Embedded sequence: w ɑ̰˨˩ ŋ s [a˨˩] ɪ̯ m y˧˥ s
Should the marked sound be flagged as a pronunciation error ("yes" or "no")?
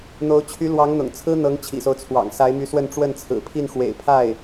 yes